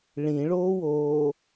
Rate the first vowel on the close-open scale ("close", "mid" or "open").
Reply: close